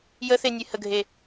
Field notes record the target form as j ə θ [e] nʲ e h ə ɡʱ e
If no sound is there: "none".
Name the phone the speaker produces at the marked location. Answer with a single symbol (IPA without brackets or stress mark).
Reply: e